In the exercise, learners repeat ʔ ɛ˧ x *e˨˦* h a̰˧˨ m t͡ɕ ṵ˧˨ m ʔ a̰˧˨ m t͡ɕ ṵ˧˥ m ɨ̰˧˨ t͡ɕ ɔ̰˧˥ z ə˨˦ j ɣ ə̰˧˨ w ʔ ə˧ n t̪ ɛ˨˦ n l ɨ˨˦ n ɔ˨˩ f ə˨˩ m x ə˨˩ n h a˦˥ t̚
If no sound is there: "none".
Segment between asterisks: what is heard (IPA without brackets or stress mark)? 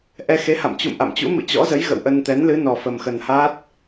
e˨˦